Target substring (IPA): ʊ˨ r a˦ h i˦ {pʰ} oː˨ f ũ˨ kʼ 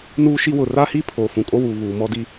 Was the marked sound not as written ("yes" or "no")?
no